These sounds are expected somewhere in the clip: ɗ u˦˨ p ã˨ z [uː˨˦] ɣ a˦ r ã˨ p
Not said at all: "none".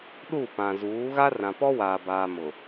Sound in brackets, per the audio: uː˨˦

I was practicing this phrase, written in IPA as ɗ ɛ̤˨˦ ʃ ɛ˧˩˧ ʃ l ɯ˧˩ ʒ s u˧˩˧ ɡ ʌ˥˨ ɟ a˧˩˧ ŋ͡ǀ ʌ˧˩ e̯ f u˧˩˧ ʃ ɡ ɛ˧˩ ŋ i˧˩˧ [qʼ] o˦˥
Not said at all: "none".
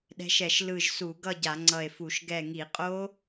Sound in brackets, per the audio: qʼ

